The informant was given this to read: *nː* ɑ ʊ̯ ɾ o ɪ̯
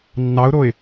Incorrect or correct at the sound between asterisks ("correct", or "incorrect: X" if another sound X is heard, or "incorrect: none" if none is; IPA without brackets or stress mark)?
correct